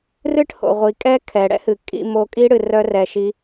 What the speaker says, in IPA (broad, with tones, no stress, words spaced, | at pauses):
rɨ˦ʈho̰˨ʁʷi˨kʼɛ˦ kʰɛ˨ɽɛ̰˦hɨ˨ kʼḭ˧mo˧kʼi˦ ɽɨ˧rœ˦rɛ˧ʃi˦